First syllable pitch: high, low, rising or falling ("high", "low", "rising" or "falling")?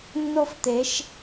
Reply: high